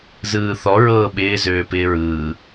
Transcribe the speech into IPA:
z ɯː θ ɔ ɹ ɤː ɓ ɪː z øː p ɪː ɹ ɯː

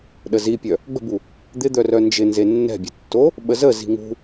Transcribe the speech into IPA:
ɗ ə z i pʲ œ | ɡ͡b ə̤ b u | d̪ ɪ d̪ œ r œ n d͡ʒ ɪ n z e nː ɛ̤ bʲ ə̤ tː o | ɓ ə z ə z i̤ ŋ ṳ

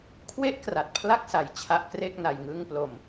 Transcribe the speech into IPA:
kʰ w e˦˥ ʔ k r a˨˩ t̚ pʰ l a˥˩ k̚ s a˨˩ j t͡ɕʰ a˦˥ ʔ k r e˥˩ k̚ n a˧ j ŋ ɯ˥˩ ŋ p l o˧ m

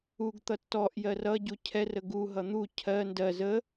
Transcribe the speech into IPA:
u ɡ t̪ ʌ tː ɔ ʔ j ɜ r ʌ ɟ u cʰ ɛ r ə ɡ u ɦ ʌ n̪ u cʰ ɜ n d ɜ z ə

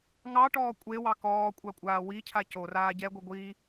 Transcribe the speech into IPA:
ŋ ɑ ʈ ɔː kʷʼ e w ɑ k ɔː kʷʼ ɑ kʷʼ aː w i cʰ a c o r aː ɟ ɛ ɡʷ i ɡʷ i

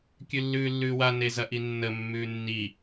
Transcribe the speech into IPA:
kʲ ʉ lː ʉː lː ʉː w a n e z ɐ ʔ i nː ə mː ʉː nː i

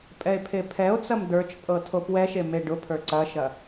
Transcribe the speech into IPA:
pʼ ɛ e̯ pʰ e pʰ ɛ o̯ t͡s ɐ m d ə˞ t͡ʃ pʼ ɤ tʰ o p w ɛ ʃ e m e ɖ ʊ pʰ ə˞ ǀ ɐ ʃ ɐ

